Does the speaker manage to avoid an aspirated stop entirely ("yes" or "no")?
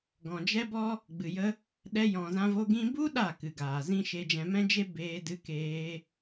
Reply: yes